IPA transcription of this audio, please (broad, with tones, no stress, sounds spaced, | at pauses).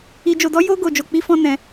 i˧ d͡ʒ o˧ d ɔ˦ j o˦ ɡ o˧ d͡ʒ o˧ k͡p i˦ f ɔ̃˦ n ɛ̃˧